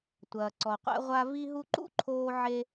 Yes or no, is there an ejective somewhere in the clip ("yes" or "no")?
no